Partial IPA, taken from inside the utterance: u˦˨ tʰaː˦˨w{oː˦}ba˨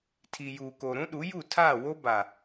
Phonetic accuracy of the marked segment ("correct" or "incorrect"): incorrect